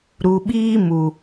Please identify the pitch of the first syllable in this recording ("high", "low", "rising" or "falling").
low